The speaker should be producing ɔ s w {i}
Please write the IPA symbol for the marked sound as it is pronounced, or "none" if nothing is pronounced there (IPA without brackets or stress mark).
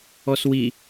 i